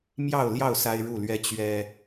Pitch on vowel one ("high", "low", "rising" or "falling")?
falling